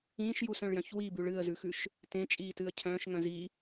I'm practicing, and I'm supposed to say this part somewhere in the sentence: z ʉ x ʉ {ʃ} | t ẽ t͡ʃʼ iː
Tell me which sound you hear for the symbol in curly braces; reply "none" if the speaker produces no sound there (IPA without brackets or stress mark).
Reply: ʃ